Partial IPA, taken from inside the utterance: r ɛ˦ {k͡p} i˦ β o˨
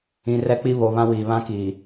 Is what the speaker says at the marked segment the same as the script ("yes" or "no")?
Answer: yes